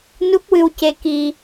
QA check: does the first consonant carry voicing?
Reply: yes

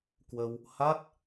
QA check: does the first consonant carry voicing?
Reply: no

